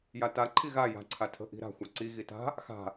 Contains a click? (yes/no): yes